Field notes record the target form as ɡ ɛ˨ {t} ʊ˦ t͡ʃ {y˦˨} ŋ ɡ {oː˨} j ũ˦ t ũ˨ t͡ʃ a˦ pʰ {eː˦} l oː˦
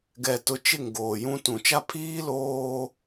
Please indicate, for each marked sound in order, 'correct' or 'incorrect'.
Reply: correct, incorrect: ɪ˦˨, correct, incorrect: iː˦

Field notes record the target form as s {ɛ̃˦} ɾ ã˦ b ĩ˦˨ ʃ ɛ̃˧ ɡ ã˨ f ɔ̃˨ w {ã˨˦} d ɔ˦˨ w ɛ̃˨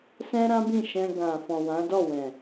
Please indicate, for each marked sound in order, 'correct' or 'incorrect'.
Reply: correct, correct

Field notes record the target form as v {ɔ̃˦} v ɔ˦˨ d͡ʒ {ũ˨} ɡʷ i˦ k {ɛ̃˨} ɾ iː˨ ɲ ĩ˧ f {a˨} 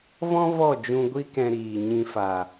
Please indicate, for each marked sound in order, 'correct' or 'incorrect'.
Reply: correct, incorrect: ũ˧, incorrect: ɛ̃˧, correct

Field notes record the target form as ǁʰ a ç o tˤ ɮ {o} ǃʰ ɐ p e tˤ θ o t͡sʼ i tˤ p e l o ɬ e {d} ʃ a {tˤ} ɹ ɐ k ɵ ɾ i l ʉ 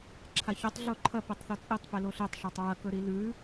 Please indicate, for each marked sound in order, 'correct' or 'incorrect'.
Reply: correct, incorrect: tˤ, correct

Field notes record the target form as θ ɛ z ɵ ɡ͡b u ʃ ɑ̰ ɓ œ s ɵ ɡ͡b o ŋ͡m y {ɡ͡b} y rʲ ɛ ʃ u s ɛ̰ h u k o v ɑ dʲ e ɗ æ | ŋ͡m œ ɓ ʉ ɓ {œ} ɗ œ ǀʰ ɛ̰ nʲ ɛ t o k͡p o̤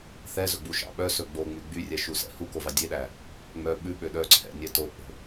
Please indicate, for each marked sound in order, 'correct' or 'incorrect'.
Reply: correct, incorrect: ø

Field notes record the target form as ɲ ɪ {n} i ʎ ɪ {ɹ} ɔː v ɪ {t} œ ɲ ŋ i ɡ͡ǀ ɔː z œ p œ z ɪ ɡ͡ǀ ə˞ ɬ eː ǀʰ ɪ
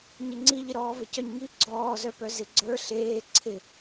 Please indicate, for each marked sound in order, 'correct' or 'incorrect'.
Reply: incorrect: ŋ͡ǀ, incorrect: ɾ, incorrect: c

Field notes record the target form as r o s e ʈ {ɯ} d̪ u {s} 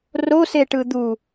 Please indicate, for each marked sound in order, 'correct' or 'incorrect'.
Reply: correct, incorrect: none

